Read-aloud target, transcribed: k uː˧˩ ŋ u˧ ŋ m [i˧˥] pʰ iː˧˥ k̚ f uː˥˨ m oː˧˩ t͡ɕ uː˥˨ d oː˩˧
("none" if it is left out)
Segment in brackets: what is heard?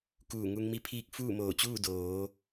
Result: i˧˥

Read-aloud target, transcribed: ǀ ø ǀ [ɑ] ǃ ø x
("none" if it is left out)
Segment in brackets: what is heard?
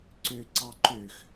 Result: ɑ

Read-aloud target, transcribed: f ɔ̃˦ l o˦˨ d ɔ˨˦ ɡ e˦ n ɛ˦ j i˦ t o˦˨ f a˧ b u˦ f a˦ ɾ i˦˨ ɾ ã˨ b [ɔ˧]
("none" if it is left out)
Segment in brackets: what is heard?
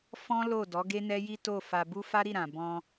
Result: ɔ̃˧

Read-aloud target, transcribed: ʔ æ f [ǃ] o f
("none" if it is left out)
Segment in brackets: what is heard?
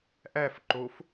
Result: ǃ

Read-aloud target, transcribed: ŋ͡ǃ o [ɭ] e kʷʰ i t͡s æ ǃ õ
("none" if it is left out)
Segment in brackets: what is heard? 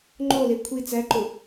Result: l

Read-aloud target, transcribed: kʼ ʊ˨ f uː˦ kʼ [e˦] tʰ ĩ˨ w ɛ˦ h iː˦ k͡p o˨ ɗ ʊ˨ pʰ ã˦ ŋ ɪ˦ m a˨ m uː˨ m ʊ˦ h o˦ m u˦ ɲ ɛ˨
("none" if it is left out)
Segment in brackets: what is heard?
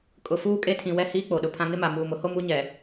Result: e˦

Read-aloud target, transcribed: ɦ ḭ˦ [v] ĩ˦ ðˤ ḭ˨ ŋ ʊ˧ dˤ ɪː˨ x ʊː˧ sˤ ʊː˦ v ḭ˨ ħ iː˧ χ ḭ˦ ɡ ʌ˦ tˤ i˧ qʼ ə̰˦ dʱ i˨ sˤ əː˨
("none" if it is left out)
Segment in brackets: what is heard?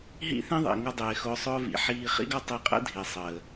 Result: θ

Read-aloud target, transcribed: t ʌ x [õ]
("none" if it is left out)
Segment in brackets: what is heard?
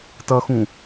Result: ũ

